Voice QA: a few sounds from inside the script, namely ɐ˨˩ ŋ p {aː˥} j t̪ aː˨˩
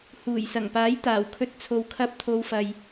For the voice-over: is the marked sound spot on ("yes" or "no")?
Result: no